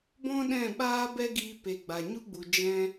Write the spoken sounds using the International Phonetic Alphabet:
b ɔ̃˦ ɗ ɛ̃˦˨ ɓ aː˦ b ɛ˦ ɡ iː˧ p e˨ ɡ͡b a˨ ɲ u˦ ɡ͡b u˨ d͡ʒ ɛ̃˦

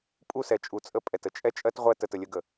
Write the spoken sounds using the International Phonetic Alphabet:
pʼ u˦˨ s ɛ˨ t͡ʃʼ u˨ t͡sʼ ə˦˨ pʼ ɛ˨ t ə˨ t͡ʃʼ ɛ˦ t͡ʃʼ ɜ˦ t ʁʷ ɜ˦ t ə˨ t ə˨ lʲ ə˦ ɡ ə˨

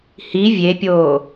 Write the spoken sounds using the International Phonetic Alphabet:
h i vʲ e pʲ oː

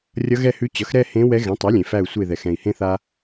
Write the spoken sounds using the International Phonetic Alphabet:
rʲ ʌ˧˥ ɣ ɛ˥˧ h ʉ˧˥ t͡ɕ ʌ˩˥ x ɾ ɛ˥˧ h ẽ˧˥ w ɛ˧˥ ɣ ɛ̃˩˥ tˤ ɛ˩˥ lʲ ẽ˩ f æ˧˩ u̯ sʷ e˧˩ ð ɛ˩ x ɛ̃˩ i̯ h ẽ˧ θ a˧

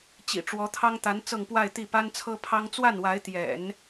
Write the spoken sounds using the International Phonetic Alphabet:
t͡ɕ ḭ˨˩ ʈ͡ʂ w ɔ˧˥ t̪ʰ ɑ˥ ŋ t̪ a˧˥ n t͡s ɤ˥˧ ŋ p w a˥˧ ɪ̯ t̪ i˥˩ p a˥ n t͡sʰ ɤ˥ pʰ ɑ˥ ŋ t͡s w a˥˩ n w a˧˥ ɪ̯ t̪ j ɛ̰˨˩˦ n

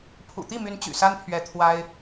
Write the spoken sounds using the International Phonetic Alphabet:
pʰ ṵ˨˩ t̪ i˥˩ m y˧˥ n t͡ɕ y̰˨˩ s a˥ n pʰ ɥ ɛ˧˥ t̪ʰ w a˥ ɪ̯

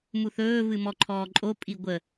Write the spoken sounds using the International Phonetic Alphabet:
m u θ ɵː v ɨ m ɔ ǃʰ ɔː ǃʼ o pʼ i ɡʷ ə

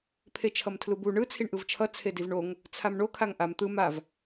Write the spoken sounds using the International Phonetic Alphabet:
pʰ e t͡ʃʰ ʌ m tʰ l u b u ɳ ɯ t͡sʰ i ɳ ʔ ɯ v t͡ʃʰ ʌ t͡sʰ e d i v ɳ o ŋ | t͡sʰ a m ɳ o kʰ a ŋ ʔ a m t̪ ɯ m a v

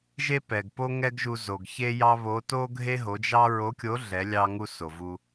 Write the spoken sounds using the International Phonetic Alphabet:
ʒ e˥ p ɛ˩ ɡ p o˥ ŋ ɛ˥ ɡ ʒ u˧ z o˩ ɡ ç e˥ j ɑ˥ β o˧˥ t o˥ ɡʱ e˥ ɦ o˩˧ d͡ʒ ɑ˥ ɹ o˧˥ kʲ o˧˥ ɮ ɛ˩˧ lʲ ɑ˧ ŋ u˧ s o˩ v u˧

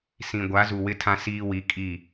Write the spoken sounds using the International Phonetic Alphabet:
s ĩ˨ ɡʷ a˨˦ z u˨ w ɪ˦ tʰ ã˦ s iː˦ w i˨˦ kʼ i˦˨

